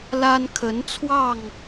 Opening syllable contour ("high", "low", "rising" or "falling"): high